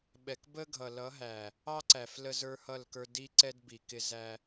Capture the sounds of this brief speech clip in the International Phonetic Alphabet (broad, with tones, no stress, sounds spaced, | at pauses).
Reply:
ɓ ɛ˨ k b ə˦ ɡʱ ʌ˨ l ʌ˨˦ ɦ æ˨ | ɑ˦ ǀ æ˨ f l ə˦ z ə˞˦ h ʌ˦˨ l k ə˞˦ d i˦ ǀ ɛ˦ d b i˨ k ɪ˦ z æ˦